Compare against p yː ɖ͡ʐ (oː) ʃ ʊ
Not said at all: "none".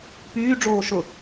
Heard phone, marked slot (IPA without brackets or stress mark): oː